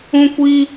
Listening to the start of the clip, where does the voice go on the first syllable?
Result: high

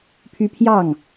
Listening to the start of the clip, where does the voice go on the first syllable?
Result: high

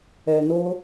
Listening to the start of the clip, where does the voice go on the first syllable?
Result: low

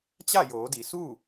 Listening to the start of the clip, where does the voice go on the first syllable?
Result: falling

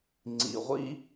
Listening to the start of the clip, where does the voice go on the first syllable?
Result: low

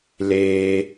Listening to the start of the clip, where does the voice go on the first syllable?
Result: high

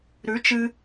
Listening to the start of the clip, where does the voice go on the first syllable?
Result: rising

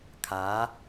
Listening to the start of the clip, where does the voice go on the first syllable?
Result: rising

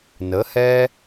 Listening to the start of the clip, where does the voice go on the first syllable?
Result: rising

